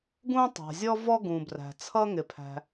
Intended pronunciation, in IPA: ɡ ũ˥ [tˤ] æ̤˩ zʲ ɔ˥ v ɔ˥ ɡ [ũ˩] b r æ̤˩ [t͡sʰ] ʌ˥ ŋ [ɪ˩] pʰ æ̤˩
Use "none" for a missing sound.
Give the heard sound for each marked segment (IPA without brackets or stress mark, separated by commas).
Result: tˤ, ũ˩, t͡sʰ, ɪ˩